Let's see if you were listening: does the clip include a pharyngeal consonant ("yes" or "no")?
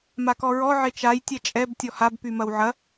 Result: yes